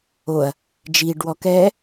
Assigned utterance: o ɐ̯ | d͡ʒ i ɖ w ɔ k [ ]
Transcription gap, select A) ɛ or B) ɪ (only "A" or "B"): A